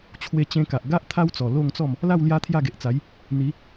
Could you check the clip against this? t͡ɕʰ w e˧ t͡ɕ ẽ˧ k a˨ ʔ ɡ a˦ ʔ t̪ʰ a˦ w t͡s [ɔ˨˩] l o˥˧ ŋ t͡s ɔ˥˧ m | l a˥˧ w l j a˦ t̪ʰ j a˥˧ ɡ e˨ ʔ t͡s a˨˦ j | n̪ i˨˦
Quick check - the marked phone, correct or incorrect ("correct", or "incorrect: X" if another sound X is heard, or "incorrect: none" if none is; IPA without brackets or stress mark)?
correct